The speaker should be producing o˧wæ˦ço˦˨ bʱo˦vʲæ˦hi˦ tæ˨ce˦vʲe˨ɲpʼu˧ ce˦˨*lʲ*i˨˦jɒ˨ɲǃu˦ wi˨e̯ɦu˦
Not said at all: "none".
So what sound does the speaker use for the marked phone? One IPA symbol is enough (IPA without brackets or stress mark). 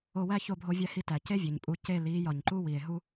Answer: l